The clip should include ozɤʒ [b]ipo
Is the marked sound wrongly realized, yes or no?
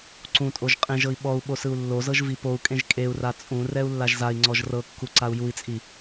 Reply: yes